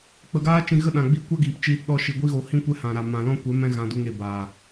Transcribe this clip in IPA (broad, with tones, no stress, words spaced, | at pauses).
k͡pə˧ɡaː˦t͡ʃĩ˧ ɣə˦˨ɗã˨ɡ͡biː˧ kʷa˦ɡiː˨p t͡ʃiː˧tɗɔ˧ʃi˨ ɡʷi˦ɣo˧ hĩ˦kʷɛ˦hã˨ɾa˨ mã˨lɔ̃˦kʷɛ˨˦ mɛ̃˧ ɣã˧du˧ŋe˨ baː˨